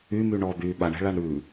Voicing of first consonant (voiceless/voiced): voiced